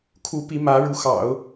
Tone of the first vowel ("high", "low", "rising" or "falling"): rising